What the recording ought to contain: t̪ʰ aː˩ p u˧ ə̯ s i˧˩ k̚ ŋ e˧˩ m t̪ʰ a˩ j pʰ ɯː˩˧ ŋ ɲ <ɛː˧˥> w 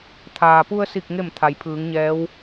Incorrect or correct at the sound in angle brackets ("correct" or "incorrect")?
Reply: correct